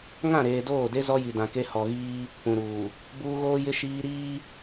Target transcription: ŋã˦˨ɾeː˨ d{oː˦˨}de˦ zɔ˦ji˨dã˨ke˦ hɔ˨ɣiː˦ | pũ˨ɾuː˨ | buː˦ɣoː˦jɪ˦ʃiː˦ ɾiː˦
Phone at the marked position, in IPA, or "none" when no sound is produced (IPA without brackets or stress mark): oː˦˨